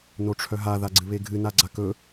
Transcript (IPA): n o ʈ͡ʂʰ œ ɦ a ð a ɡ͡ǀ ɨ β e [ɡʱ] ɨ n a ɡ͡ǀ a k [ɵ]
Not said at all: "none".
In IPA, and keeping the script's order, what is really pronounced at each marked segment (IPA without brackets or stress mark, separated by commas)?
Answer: ɡʱ, ɵ